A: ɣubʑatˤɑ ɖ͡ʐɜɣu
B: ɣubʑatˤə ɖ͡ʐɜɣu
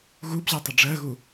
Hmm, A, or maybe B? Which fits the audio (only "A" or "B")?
B